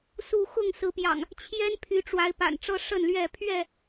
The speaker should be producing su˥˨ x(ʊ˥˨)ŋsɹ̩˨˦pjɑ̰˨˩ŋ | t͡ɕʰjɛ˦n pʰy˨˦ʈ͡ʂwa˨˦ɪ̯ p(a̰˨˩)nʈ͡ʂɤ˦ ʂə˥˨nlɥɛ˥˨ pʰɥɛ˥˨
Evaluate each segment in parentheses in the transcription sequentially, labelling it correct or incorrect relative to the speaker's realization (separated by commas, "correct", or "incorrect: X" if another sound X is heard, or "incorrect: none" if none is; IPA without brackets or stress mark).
correct, correct